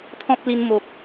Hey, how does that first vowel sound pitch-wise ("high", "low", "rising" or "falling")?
high